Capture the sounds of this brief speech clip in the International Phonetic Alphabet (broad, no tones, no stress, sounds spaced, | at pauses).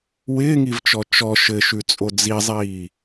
w ɪː ŋ i v t͡ʃ ɔ t͡ʃ ɔ ʃ ɘ ʃ ʉ t͡sʼ o d͡z i zˤ iː